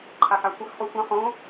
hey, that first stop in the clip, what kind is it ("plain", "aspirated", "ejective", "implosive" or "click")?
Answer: click